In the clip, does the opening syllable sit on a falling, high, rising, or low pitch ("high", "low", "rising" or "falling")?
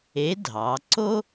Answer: rising